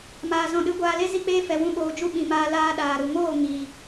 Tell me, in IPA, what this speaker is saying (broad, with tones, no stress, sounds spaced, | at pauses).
m aː˨ z ɔ̃˨ ɗ ɨ˨˦ ɡʷ aː˧ l e˦ z i˦ k͡p eː˦ f ɛ˨ w ũ˧ ɓ oː˨ d͡ʒ u˧ ɓ ĩ˨ m aː˧ l aː˧ ɗ aː˨ ɾ u˨ ŋ oː˦˨ ŋ i˨